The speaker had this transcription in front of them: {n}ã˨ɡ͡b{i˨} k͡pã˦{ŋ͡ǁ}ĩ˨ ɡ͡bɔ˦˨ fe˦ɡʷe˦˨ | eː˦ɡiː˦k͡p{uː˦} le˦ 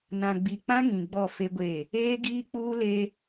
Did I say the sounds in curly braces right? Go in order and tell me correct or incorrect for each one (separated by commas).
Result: correct, correct, incorrect, correct